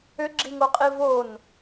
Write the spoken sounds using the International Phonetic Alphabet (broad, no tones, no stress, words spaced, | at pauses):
ʏɡ͡ǁiŋoqʼi von